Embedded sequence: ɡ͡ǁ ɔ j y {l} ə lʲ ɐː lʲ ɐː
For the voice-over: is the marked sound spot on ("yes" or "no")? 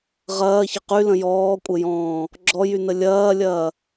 no